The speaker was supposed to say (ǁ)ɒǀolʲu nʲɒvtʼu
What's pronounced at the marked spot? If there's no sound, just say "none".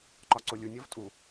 ǃ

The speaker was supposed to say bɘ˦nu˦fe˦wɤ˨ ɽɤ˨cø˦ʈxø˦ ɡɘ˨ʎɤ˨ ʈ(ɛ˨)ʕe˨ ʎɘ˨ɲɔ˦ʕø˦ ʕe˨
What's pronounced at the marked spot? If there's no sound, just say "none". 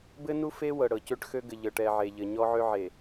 ɛ˨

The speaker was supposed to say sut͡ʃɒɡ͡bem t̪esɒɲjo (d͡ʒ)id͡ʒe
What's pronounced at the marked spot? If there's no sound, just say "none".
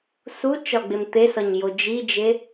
d͡ʒ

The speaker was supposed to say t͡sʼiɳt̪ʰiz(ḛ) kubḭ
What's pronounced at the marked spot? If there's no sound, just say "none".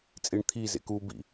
ḛ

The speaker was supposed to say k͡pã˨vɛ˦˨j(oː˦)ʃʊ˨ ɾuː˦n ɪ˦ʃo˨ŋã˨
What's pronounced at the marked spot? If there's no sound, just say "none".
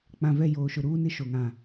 oː˨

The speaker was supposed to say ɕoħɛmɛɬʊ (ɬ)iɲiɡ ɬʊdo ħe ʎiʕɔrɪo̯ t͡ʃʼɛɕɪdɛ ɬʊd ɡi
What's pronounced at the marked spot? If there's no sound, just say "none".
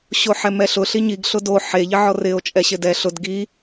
ɬ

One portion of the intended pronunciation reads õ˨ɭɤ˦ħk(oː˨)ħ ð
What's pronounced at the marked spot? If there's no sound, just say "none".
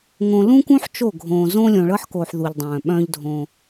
oː˨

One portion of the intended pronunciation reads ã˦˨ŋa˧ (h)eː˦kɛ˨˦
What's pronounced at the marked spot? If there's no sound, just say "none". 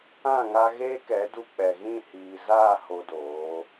ɣ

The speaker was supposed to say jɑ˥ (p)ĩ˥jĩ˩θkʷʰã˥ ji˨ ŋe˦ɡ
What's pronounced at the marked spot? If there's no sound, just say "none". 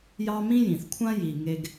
m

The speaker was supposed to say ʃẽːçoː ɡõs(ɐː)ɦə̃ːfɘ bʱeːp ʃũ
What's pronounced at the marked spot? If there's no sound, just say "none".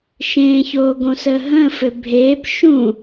əː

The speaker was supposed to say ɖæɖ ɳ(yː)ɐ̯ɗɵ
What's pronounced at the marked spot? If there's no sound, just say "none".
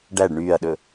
yː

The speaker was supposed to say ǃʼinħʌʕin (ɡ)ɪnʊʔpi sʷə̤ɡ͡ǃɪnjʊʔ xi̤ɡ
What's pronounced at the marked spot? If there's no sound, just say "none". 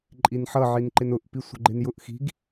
ǃ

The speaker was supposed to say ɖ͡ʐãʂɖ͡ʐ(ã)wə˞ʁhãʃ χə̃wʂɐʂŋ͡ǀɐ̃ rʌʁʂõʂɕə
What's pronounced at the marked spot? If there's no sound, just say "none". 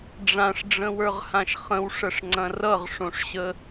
ə̃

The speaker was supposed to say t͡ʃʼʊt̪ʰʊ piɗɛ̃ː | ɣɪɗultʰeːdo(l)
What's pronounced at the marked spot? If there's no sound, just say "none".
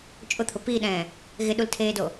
none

